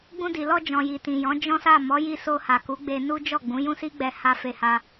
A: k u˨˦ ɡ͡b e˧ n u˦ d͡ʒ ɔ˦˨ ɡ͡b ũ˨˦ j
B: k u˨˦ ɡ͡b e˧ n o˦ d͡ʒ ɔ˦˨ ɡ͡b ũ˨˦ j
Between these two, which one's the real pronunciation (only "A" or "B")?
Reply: A